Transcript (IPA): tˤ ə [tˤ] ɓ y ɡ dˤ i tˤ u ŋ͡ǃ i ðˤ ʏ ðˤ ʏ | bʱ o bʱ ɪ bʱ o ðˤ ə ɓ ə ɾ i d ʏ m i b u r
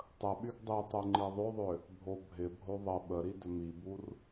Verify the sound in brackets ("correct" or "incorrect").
incorrect